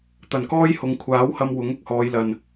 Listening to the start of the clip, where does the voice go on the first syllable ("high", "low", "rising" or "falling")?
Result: low